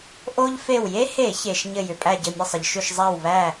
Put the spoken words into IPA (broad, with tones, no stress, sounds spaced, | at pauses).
ʔ o˥ ʎ f e˧˩ w j e˥ h e˧˩˧ ç e˩ ʃ ɲ ɘ˧˩ j ʏ˩ pʼ æ˧˩ ɟ ɘ˧˩ mʲ ə˥˩ sˤ ə˩ ʎ ʃ ʏ˥˩ ʃ zˤ a˥˩ w β æ˥˩